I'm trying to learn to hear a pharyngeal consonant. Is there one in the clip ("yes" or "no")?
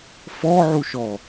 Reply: yes